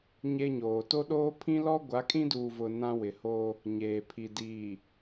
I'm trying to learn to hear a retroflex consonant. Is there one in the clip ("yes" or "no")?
no